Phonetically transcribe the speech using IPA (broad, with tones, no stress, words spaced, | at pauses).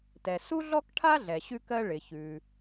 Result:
tɛ˩su˥ɮɔ˥kʈʰa˥ ɮɛ˩ɕʉ˥kɜ˥ ɭɪ˩çʉ˩